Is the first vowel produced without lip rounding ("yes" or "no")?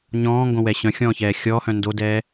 no